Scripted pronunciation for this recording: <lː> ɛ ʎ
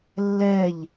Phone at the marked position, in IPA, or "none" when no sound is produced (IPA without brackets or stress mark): lː